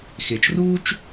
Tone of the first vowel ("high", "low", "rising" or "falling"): low